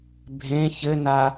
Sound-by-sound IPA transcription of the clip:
bʱ ẽ ç ɘ n a

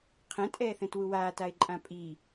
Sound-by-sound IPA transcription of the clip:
qʰ ɛ̃ tʼ ɛː θ ɛ̃ t w u w aː t a ɪ̯ ǃʼ ã pʼ i

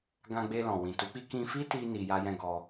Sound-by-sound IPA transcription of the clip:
ɡ ã˧ ɡ͡b e˧ l ɔ̃˨ w ĩ˨ t u˨˦ k͡p i˦ k ĩ˧ f i˦ t i˧ n i˧ j a˦ j ɛ̃˦ ɡ ɔ˧

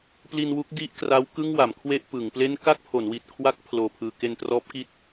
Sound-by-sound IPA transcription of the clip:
p l i˧ n w u˦˥ k̚ d i˥˩ ʔ k r a˦˥ w k ɯ˥˩ ŋ w a˩˦ m kʰ w e˥˩ ʔ p ɯ˩˦ ŋ p l e˥˩ n k a˥˩ k̚ pʰ o˩˦ n w i˨˩ t̚ kʰ w a˦˥ k̚ pʰ l oː˧ pʰ ɯː˧ k e˧ n t r ɔː˦˥ p̚ k i˦˥ t̚

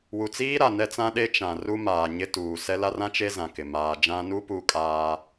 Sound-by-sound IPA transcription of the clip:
w u˨ t͡s iː˦ ɾ a˨ n ɛ˦ t͡s ã˦ ɗ e˦ t͡ʃ ã˨ r u˦ m aː˨ ɲ ɪ˦ t uː˨ s ɛ˦ l a˦ r ã˦ t͡ʃ e˦ z ã˨ k ɪ˨ m aː˨ d͡ʒ ã˦ n u˦ p u˦ kʼ aː˦

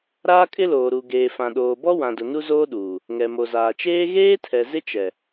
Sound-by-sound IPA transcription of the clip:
ɾ aː˦ kʼ ɪ˦ l oː˨ ɾ u˨ ɡ eː˨ f ã˨ ɗ oː˨ b ɔ˦ w ã˨ d ʊ˨ n u˦ z oː˦ ɗ uː˨ | ŋ ɛ˨ m o˨ z aː˨ t͡ʃ eː˦ ɣ eː˦ tʰ ɛ˨ z ɪ˦ t͡ʃ ɛ˨

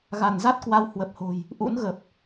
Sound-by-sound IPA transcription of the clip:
ɣ a˧˩ n z a˦˥ t̚ k w a˨˦ w h w ə˨˩ p̚ h o̤˨˩ j | ʔ ṵ˧˥ n ɣ ə˨˩ p̚

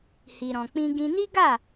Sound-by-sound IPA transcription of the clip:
h i˧ ɾ ɔ̃˧ k͡p ĩ˦ ɡ ĩ˧ n i˦ ɡ a˦˨

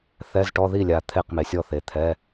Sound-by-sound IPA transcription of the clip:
θ ɛ˧˥˧ z ʈ ɔ˧˥˧ ð i˥˩ lʲ a˨ t̪ʰ e˥˩ q m e˨ sʲ ɔ˥˩ θ e˨ t̪ʰ ɛ˧˥˧

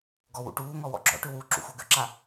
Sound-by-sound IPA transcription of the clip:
ɡ ɔ w ṵ ʈ uː ŋ ɔ w ɔ̰ ɡ͡ǁ ɔ̰ ʈ ʏ w u ǁ ṵ xʷ œ ɡ ʏ ǁ a

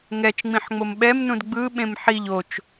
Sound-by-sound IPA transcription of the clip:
ŋ ɛ t͡ʃ ŋ͡m ĩ ħ ŋ͡m o m ɓ ɛ m n ũ d ɡ͡b ɯ ɓ ẽ m ħ i ʎ o t͡ʃ

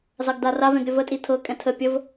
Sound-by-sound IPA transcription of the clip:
z ɑ ɡ d a r a v ɛ̃ ɡ ɾʲ ə v ə tʼ i tʰ ɤ kʼ ɛ̃ tʰ ə pʲ ə v

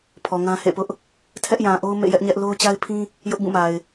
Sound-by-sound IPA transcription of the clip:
pʰ ɔ˨ ŋ ã˦ h ḛ˦˨ p ʊ˦ ʔ | tʰ ɛ˦ ʔ j ã˨ ʔ o˦ ʊ̯ m ḛ˦˨ j ɛ˦ ʔ ɲ ɛ˦ ʔ l o˦ ʊ̯ t͡ɕ a˦ ɪ̯ pʰ ĩ˦ | j ʊ˦ ʔ b ũ˦˨ m a˨ ɪ̯

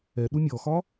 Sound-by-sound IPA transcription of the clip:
ɛ ɗ u mʲ ɔ x ɒ

